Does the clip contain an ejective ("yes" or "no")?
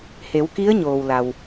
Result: no